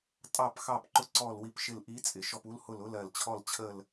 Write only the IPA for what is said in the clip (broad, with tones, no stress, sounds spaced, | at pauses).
tʼ ɑ˦˨ p x ɑ˦˨ p ǃ ʊ˦˨ ǀ ɔ˦˨ l w i˦˨ p ʃ ɪ˦˨ l ʔ i˧˥ t͡sʼ ɪ˨˩ ʃ ɔ˦˨ p u˧˥ l h ʊ˦˨ l ʊ˧˥ l ɜ˨˩ l t͡ɕʰ ɔ˦˨ l t͡ɕʰ ə˦˨ l